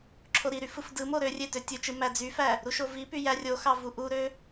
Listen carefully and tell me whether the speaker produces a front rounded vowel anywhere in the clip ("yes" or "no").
yes